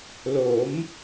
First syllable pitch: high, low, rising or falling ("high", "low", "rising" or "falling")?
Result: rising